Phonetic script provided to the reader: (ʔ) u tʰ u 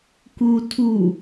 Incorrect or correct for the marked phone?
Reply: incorrect: k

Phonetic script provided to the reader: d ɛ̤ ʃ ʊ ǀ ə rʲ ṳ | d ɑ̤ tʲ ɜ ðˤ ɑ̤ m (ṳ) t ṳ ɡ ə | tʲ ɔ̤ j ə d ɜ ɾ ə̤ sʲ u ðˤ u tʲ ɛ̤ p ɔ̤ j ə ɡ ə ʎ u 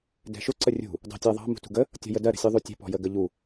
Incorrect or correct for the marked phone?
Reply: correct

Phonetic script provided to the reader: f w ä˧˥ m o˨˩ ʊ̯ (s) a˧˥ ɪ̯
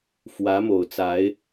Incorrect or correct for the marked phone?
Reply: incorrect: t͡s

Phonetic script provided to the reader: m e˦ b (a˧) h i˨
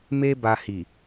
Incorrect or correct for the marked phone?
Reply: correct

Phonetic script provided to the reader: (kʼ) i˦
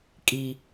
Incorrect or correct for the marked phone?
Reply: correct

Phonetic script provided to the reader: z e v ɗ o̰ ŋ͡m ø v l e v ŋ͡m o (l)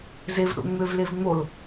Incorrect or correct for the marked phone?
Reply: correct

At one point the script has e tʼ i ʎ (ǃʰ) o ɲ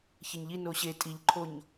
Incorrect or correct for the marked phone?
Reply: correct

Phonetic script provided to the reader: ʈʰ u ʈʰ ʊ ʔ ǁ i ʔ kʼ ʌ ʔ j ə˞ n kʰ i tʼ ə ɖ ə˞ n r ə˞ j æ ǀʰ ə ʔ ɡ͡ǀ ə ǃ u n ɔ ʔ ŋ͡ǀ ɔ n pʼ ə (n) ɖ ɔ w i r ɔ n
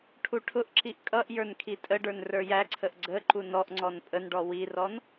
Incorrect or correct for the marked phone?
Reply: correct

